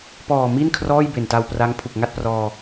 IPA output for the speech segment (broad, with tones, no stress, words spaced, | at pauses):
pɔː˨˩mi˥˩nkʰrɔː˥˩j be˨˩nta˧wpra˦˥ŋ pʰu˨˩k̚ŋa˥˩t̚prɔː˧